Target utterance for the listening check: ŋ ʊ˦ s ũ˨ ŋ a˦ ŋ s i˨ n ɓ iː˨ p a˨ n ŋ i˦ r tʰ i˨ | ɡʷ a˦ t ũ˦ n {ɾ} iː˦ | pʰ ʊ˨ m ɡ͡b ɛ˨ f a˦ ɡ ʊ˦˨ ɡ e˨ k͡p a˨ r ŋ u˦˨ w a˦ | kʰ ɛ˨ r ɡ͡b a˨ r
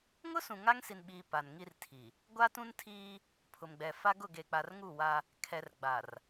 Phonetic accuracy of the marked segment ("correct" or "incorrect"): incorrect